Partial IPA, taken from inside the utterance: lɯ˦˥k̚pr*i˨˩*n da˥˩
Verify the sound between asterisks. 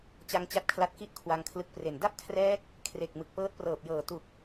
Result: incorrect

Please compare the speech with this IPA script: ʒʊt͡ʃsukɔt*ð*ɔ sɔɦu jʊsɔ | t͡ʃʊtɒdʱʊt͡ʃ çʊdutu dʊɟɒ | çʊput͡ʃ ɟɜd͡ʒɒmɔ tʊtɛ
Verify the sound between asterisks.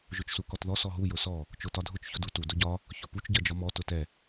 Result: correct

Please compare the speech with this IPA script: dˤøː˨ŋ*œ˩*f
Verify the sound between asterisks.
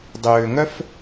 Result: incorrect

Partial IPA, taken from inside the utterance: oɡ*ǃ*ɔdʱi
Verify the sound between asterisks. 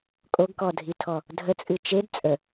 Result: incorrect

